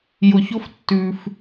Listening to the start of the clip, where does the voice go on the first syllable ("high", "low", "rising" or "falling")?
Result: low